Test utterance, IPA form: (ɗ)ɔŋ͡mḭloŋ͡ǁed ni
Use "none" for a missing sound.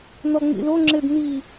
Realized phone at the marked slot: n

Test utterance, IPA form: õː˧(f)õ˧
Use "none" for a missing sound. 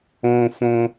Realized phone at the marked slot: f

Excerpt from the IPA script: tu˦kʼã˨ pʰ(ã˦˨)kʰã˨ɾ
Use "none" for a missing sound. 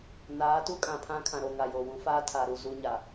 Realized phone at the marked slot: ã˦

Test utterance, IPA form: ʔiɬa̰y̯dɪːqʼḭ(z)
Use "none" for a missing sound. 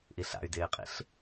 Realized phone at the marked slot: ɬ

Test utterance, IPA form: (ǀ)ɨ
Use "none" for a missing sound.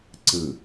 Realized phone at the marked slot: ǀ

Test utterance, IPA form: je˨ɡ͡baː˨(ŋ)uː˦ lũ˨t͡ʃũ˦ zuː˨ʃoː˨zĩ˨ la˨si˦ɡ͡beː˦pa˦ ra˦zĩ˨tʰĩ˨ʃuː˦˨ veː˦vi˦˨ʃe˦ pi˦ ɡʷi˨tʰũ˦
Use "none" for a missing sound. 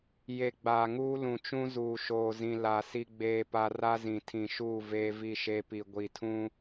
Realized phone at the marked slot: ŋ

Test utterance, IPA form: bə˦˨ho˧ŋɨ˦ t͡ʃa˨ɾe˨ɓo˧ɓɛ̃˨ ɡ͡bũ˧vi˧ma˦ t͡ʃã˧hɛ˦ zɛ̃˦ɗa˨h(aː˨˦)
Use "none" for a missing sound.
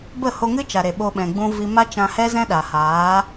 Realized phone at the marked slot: aː˨˦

